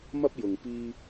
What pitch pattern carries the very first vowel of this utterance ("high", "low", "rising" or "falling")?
high